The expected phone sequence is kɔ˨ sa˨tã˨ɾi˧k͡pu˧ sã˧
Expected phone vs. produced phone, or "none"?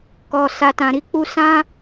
none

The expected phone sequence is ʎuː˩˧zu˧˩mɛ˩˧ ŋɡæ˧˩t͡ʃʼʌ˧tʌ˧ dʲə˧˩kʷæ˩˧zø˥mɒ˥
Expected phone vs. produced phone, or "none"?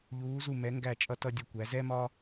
ø˥ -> ɛ˥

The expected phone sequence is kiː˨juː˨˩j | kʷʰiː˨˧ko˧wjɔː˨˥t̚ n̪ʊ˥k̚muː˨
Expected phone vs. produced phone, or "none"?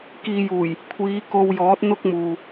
none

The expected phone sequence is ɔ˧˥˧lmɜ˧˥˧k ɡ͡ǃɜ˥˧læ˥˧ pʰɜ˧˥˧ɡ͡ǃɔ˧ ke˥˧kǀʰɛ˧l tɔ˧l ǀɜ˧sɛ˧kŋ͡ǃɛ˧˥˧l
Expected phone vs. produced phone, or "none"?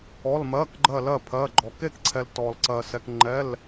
æ˥˧ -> ɜ˥˧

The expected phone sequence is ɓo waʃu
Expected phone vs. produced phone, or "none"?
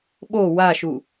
none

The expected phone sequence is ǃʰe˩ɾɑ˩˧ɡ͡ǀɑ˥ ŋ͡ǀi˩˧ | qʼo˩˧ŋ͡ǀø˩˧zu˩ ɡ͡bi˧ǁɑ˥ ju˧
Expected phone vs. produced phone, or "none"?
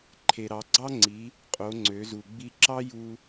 none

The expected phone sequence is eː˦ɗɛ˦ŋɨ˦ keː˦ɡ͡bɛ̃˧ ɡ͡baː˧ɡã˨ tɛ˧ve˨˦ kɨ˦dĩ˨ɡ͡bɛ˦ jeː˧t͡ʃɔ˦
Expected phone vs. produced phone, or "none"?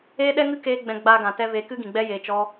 d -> ɡ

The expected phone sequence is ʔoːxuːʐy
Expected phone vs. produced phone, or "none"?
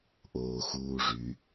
none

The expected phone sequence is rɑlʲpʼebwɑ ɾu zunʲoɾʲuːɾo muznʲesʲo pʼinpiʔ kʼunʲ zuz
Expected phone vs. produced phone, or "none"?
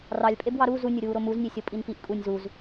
none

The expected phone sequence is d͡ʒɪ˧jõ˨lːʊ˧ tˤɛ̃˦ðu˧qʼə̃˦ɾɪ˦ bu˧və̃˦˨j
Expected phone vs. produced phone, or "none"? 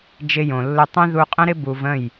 none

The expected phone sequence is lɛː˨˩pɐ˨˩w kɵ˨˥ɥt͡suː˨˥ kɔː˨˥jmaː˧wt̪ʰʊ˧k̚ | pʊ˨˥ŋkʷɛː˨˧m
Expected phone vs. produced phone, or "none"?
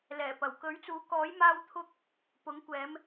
none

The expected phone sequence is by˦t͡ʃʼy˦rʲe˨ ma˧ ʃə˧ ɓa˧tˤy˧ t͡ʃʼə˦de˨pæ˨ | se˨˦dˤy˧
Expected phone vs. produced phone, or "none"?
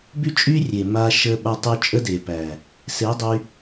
none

